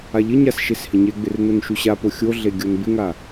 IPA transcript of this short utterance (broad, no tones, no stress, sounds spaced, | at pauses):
a ʎ ɪ ɲ a s ʃ e s h ɪ ɲ e ɡ͡b ɪ r n o n ʃ u ɕ a p o xʲ o ɮ e ɡʲ o n b ɪ ŋ a